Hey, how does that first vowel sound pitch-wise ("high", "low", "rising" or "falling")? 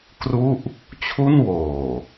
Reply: falling